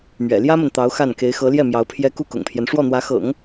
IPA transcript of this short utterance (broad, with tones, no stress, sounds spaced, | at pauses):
m ɥ ɛ̰˨˩ l j ä˥ m ə˨ n t̪ ɑ˧˥ ʊ̯ x a˥˩ n k e˧˥ ɪ̯ x ɤ˧˥ l j ɛ˥˩ m j ɑ˧˥ ʊ̯ pʰ j ɛ˥ k u˥˩ k ʊ̰˨˩ ŋ pʰ j ɛ˦ n ʂ w ɔ˥˩ n̪ w ä˧˥ x ɤ̰˨˩˦ ŋ